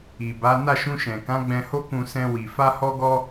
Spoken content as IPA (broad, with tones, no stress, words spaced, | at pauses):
i˨ba˨˦ na˦˨ʃũ˧ʃɛ̃˨kã˨˦ ɡ͡bɛ̃˧ho˦kũ˧ sɛ̃˧wi˨ fa˧hɔ˧ɡɔ˧